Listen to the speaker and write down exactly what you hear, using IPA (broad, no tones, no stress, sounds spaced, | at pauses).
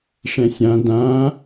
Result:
ʂ ɛ̃ sʲ ã d ã